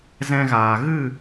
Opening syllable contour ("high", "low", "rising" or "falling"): high